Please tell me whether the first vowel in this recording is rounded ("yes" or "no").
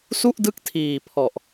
yes